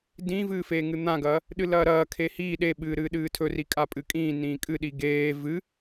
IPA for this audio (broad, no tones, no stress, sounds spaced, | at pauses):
d ĩ v ɨː f eː ŋ ɨ n̪ ã ɡ ɐː | ɗ ɨ l ɐː ɾ ɐː kʰ e h iː ɗ e ɓ ɨː ɾ ɨː ɗ ɨː tʰ ɵ r i kʼ a pʼ ɨ kʼ ĩː n ĩː kʼ ɨ ɗ i ɡ eː v ɨ